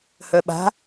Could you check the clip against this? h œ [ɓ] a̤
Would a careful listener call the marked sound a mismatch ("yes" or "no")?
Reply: no